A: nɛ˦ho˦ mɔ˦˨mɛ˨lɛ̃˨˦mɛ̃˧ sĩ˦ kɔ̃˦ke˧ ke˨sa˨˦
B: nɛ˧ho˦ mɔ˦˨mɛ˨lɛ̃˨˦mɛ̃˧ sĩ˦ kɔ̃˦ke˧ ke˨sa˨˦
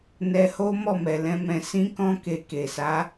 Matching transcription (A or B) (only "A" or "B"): B